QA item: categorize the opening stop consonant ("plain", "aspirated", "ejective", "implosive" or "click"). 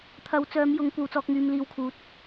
aspirated